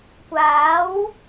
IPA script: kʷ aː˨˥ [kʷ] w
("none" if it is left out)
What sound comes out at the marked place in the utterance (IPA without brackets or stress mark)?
none